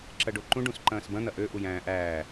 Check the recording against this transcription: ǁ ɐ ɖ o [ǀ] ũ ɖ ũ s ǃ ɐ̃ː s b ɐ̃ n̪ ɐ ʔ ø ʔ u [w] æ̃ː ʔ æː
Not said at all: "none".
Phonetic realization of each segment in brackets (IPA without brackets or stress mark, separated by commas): ǃ, j